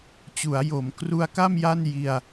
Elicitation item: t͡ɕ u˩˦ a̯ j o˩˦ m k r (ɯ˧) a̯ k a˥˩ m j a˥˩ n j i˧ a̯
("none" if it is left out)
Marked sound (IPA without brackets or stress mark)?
u˧